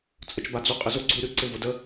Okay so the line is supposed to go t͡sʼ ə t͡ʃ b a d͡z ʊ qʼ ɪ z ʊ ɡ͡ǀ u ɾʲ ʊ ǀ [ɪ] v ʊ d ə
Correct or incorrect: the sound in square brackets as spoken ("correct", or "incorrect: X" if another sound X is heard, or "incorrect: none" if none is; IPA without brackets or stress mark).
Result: correct